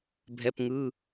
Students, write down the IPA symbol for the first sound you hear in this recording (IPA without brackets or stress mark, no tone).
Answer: bʱ